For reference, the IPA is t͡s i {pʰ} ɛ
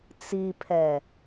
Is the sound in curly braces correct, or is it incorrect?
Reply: correct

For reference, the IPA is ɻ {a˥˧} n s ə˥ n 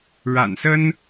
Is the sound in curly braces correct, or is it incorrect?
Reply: incorrect: a̰˨˩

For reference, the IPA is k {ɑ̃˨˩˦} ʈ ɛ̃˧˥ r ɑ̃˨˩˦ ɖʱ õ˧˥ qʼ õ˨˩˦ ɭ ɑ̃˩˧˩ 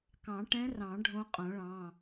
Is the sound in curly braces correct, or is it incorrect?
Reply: correct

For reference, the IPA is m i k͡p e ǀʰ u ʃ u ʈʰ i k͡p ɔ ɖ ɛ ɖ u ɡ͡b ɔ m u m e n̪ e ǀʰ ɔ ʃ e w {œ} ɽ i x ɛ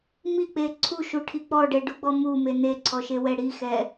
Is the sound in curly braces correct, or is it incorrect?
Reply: incorrect: ɛ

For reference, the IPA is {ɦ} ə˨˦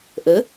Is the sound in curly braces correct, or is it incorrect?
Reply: incorrect: ʔ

